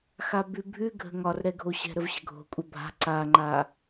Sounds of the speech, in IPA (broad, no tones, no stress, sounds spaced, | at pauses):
x a b ʉ bʱ ʉ ɡʱ ə̤ ŋ ɒ r ɾ ɛ ɡʱ o ɕ ɛ̤ ɾ ə v ɕ ə̤ ɡʱ o̤ kʷʼ ə bʱ a̤ ǀ a ŋ͡ǃ a